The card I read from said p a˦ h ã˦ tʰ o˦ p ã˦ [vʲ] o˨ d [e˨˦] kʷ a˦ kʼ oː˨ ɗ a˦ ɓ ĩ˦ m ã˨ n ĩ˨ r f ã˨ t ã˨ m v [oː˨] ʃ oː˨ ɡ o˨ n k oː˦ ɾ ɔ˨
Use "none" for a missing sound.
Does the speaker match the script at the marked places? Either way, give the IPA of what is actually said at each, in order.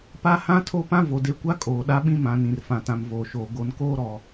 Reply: v, e˨˦, oː˨

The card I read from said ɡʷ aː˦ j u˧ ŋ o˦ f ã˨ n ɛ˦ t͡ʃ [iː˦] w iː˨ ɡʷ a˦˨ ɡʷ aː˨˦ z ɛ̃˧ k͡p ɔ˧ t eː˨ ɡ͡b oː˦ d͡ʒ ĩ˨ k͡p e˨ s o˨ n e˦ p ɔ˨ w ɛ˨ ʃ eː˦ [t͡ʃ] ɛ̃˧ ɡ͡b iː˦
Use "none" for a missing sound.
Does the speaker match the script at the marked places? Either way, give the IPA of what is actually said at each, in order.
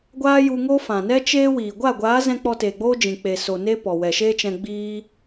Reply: eː˦, t͡ʃ

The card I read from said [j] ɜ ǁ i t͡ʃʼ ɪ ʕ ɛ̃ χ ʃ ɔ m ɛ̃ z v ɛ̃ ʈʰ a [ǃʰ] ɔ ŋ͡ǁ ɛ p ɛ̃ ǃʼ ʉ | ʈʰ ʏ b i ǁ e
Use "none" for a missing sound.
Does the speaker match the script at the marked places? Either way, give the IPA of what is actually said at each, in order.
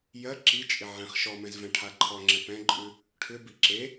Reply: j, ǃʰ

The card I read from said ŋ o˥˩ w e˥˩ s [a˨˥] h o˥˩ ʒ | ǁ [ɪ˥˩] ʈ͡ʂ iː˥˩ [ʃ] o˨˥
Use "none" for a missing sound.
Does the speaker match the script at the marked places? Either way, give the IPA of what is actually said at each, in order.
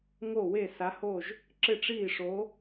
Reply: a˨˥, ɪ˥˩, ʂ

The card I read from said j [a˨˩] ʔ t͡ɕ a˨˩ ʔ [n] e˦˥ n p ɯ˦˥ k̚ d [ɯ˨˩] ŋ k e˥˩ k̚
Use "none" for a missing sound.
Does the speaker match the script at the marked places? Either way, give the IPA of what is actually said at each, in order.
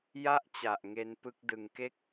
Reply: a˥˩, ŋ, ɯ˨˩

